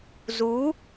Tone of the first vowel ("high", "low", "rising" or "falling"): rising